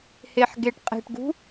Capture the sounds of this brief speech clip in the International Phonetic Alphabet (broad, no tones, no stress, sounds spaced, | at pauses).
h e ħ ɡ e ʈ qʼ e̤ ʈ ɡ ṳ